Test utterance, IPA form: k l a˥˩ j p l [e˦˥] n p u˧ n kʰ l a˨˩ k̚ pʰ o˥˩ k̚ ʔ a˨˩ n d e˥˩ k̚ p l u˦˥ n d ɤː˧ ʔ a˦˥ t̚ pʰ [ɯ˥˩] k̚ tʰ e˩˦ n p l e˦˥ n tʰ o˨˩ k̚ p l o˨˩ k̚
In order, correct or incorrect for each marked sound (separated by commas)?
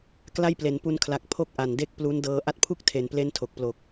incorrect, incorrect